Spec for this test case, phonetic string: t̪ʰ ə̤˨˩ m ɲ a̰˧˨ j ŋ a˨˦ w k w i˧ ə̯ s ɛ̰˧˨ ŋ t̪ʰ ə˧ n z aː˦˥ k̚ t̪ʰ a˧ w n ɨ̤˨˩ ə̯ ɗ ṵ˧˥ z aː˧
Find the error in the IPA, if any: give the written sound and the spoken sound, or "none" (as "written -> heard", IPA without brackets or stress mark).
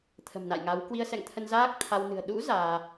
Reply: ɲ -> n